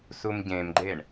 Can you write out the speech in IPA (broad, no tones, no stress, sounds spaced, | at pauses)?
s u m ɟ ẽ m ɡ͡ǃ e ɳ